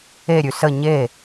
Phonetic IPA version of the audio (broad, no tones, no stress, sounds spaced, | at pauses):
e ɾʲ ʉ s ə ɲ e